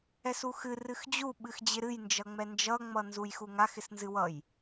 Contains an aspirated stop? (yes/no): no